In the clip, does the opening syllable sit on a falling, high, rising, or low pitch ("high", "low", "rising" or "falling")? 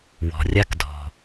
low